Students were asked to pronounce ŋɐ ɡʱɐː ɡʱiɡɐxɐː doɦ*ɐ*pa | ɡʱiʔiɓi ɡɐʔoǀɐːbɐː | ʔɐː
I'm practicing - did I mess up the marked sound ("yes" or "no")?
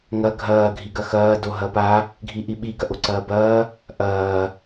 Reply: no